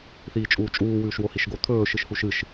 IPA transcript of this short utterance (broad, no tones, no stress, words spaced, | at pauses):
θiːt͡ʃʼuːt͡ʃʼuː wʉːʃwohiʃɡo t̪ʰɵː ʃɨʃhuʃɨʃ